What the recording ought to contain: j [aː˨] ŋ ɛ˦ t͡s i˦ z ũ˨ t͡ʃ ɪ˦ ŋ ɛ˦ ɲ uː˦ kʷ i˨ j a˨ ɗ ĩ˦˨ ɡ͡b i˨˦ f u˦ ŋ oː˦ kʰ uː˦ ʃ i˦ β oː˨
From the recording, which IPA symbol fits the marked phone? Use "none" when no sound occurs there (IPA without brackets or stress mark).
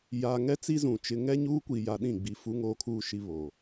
aː˨